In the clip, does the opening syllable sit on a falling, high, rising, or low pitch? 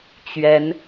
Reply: rising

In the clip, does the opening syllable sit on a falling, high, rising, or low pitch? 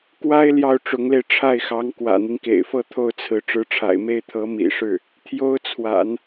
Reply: high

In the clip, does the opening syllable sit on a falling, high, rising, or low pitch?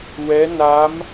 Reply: rising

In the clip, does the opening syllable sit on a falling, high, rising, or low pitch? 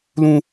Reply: high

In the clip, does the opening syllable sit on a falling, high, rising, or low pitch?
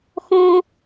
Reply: high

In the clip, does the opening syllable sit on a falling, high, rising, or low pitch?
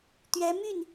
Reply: rising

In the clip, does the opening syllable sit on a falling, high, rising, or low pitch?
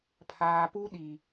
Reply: low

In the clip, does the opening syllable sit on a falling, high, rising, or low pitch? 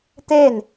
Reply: falling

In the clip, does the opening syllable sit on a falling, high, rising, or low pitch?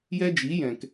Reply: high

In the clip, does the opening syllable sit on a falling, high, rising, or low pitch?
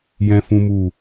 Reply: high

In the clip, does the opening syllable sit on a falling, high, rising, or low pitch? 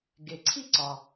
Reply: low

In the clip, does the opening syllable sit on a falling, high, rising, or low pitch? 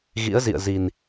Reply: rising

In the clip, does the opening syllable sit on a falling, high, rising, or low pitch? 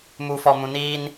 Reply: low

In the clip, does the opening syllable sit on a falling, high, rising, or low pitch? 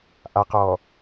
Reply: low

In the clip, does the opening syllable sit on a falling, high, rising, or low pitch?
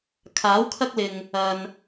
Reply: rising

